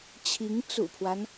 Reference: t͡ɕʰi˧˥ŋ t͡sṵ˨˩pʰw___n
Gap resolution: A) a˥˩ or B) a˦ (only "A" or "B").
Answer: B